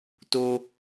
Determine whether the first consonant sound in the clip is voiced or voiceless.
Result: voiceless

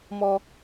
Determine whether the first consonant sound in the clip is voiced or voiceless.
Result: voiced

